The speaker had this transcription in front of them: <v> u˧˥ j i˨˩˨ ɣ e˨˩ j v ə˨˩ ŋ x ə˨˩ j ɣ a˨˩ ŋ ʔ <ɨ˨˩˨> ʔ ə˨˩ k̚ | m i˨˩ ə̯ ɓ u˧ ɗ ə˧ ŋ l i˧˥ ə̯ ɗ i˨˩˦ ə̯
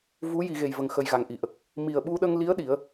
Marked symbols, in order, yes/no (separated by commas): yes, no